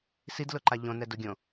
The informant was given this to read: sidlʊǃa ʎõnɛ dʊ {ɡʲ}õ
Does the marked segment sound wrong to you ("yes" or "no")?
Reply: no